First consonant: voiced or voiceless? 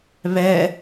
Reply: voiced